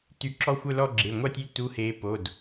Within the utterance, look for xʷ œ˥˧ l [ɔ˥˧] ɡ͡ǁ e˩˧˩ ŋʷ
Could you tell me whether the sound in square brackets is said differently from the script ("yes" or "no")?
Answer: no